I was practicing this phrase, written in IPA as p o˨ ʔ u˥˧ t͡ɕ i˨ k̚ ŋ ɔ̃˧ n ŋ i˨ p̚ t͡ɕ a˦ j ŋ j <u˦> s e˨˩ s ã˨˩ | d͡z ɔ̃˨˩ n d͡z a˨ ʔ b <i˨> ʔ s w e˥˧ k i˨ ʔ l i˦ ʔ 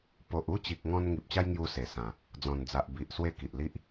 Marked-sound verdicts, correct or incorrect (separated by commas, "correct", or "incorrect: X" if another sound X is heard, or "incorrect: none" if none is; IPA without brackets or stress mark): incorrect: u˧, correct